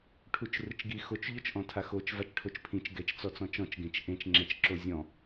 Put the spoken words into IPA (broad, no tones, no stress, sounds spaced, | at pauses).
ʈʰ u t͡ʃ r ɯ t͡ʃ ɡ i x o t͡ʃ ʎ o t͡ʃ ʔ ɔ̃ tʰ a x o t͡ʃ v a t͡ʃ ʈʰ o t͡ʃ pʰ ĩ t͡ʃ ɡ ɛ t͡ʃ t͡s ɔ t͡s ɔ̃ t͡ʃ ɔ̃ t͡ʃ ɡ ẽ t͡ʃ ʔ ẽ t͡ʃ ŋ͡ǁ ɛ t͡ʃ ǁ o zʲ ɔ̃